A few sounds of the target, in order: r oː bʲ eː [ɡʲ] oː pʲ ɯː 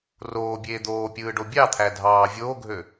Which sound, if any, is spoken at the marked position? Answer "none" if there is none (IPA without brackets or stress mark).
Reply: d̪